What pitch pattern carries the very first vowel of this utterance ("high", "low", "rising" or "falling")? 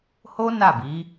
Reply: high